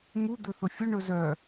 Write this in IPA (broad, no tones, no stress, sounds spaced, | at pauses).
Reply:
m u d̪ ɵ θ ʊ fʲ ʊ ɳ ɵ z œ